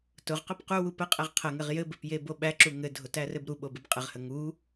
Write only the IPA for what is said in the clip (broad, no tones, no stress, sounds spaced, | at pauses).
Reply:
t ʊ ʁ q ʊ p q u w u p ə qʼ ɘ ʁ qʰ ə ŋ ɘ ʁ j ɘ b ɘ p j e b o ɓ æ ǁ u ŋ ɘ dʱ ʊ t æ r ɘ b ɾ u ɓ o b ɘ b qʼ ɘ ʁ h ə ŋ u